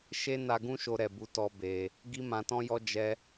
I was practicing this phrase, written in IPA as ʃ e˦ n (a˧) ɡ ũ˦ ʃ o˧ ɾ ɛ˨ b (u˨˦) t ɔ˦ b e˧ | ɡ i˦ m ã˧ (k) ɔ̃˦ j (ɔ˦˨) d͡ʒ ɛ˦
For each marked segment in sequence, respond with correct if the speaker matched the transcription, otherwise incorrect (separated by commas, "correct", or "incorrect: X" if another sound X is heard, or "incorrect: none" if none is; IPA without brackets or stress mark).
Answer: correct, correct, incorrect: t, incorrect: ɔ˦